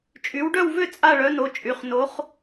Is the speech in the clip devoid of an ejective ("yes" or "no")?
no